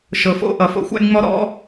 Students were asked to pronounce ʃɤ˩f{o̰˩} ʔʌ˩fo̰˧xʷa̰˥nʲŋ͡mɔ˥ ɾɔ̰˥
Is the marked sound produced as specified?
no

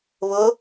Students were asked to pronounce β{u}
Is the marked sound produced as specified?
no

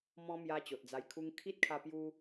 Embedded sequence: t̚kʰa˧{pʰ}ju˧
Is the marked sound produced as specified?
no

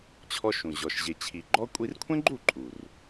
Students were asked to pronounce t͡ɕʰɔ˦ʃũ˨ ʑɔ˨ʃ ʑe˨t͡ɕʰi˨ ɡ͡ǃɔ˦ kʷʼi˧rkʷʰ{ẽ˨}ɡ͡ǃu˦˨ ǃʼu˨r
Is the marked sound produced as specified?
no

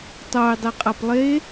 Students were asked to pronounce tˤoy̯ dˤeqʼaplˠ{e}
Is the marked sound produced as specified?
yes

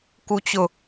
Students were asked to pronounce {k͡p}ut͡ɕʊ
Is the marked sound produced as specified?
no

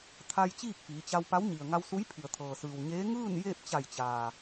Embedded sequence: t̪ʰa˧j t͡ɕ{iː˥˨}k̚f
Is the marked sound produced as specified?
yes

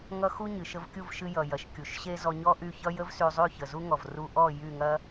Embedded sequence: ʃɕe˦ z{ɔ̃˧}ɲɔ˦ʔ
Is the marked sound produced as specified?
no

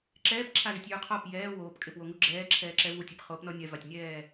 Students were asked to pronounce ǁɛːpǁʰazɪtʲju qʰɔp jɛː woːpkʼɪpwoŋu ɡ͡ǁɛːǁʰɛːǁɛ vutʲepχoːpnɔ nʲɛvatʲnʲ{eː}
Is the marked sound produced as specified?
no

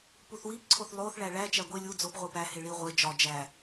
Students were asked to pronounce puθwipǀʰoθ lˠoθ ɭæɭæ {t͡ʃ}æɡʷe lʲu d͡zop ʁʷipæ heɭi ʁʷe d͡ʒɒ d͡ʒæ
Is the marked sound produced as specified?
yes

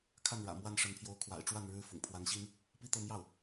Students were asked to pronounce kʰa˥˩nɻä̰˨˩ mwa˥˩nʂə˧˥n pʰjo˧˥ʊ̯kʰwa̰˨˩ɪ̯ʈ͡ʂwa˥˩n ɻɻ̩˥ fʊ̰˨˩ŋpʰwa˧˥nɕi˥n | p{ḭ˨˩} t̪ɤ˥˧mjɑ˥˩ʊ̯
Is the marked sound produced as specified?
no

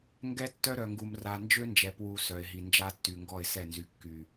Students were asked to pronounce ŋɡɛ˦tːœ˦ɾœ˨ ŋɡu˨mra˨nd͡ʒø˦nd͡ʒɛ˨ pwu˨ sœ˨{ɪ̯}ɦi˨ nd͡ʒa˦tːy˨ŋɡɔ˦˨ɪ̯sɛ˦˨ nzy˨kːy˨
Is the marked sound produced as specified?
yes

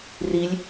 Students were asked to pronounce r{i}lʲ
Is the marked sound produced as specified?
yes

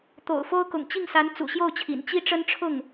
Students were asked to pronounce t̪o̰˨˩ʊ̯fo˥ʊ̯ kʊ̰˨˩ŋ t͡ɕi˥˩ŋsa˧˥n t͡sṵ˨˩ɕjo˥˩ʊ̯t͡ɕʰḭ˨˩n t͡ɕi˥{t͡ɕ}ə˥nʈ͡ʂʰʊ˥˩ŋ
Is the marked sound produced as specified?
no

